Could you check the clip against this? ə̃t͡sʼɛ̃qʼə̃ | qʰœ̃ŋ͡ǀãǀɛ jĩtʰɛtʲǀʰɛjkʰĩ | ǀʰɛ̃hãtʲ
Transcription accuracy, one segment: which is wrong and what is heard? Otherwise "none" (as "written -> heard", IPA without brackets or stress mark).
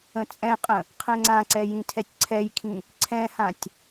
œ̃ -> ɛ̃